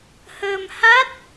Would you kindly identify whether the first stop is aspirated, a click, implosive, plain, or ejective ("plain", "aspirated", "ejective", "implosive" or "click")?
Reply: plain